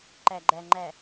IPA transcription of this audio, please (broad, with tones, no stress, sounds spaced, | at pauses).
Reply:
ǃ æ˨ ɡ͡ǃ æ˨ ŋ͡ǃ æ˨